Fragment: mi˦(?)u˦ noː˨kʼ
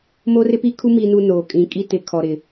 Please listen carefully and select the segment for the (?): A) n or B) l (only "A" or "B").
A